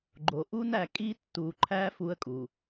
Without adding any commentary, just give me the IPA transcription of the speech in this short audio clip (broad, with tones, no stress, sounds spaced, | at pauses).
ɡ͡ǃ o˨ ʔ u˦ n æ˦˨ kʼ i˦ tː u˨ ǃʰ æ˦ f u˦ ə̯ kʼ u˨